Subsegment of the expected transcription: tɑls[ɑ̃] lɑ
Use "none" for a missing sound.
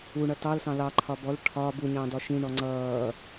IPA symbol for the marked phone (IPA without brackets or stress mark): ɑ̃